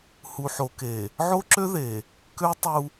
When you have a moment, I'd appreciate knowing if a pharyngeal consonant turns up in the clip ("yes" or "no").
yes